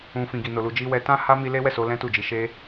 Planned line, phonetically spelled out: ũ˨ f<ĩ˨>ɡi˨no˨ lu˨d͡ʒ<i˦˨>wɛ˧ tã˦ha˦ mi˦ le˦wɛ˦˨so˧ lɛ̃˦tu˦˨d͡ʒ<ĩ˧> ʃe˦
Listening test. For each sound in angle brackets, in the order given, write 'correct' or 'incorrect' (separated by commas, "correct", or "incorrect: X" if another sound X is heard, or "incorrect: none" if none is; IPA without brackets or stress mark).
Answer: correct, incorrect: i˧, incorrect: i˧